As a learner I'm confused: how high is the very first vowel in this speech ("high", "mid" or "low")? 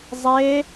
mid